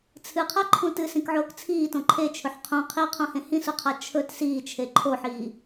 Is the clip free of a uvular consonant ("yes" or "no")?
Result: no